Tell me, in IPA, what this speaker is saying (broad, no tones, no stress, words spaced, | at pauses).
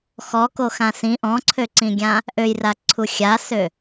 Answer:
xɔkoxã sĩ ʔɔ̃ǀʰøǀĩɡʲã | ʔøjraǀʰu xʲasø